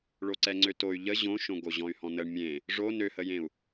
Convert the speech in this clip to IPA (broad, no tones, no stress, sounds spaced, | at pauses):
ɭ o ǀ ɛ ŋ͡ǀ ø t o y̯ ʎ ə ʑ õ ʃ õ ɡ o ʑ ɔ̃ y̯ h ɔ̃ n ə ɳ mʲ ẽ | ʐ o n ø h ə j ẽ u̯